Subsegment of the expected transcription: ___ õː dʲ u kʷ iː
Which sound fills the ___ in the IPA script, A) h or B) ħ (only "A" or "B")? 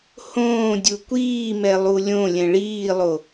A